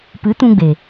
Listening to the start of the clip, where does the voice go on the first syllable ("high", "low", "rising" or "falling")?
rising